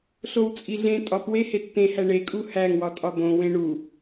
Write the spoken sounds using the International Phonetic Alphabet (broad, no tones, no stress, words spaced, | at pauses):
ɬowt͡sʼiɮẽ tʼɒpwe hetːẽhæ ɳekʼu hæŋwɒtʼɒ bõwẽ ɳu